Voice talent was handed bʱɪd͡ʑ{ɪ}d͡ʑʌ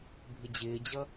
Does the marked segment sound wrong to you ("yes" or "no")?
yes